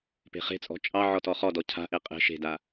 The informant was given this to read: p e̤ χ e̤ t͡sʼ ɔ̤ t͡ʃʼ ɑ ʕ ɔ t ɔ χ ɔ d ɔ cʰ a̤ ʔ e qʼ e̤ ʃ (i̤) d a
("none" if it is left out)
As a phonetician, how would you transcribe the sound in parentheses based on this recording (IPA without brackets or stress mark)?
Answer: e̤